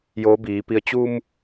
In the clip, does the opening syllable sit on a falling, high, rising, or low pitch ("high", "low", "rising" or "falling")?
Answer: rising